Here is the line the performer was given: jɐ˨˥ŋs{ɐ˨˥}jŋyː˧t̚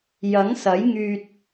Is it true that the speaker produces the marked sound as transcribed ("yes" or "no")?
yes